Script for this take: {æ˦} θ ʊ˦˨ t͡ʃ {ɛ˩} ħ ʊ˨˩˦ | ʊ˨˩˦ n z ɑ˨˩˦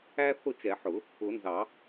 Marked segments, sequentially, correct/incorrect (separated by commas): correct, incorrect